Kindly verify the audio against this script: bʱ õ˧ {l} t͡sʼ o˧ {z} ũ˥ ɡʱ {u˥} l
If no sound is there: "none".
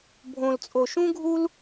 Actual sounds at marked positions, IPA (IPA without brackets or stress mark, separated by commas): l, ʃ, u˥